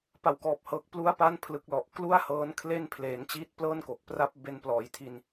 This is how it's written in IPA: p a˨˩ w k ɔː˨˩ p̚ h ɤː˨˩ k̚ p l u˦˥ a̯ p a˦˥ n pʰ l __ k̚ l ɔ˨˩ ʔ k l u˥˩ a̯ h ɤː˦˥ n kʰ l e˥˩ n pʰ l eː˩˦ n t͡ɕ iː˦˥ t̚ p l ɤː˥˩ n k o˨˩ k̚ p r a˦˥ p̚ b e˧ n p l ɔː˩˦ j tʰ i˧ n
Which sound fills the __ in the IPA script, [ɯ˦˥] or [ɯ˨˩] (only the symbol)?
ɯ˨˩